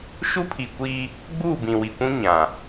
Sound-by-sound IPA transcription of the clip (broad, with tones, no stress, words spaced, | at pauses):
ʃu˦pʰi˨kʷiː˦ | ɡ͡buː˦˨bĩ˨wi˨kʷũ˦ ɲã˨